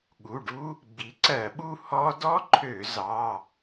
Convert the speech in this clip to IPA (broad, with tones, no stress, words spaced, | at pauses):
ɠu˩˧˩ɖu˦˥ | ɡ͡bi˩˥ǀɜ˧˩˧ɓu˥˧ hɔ˦˥ dɔ˦˥ǃʰø˧˩˧ zɑ˩˧˩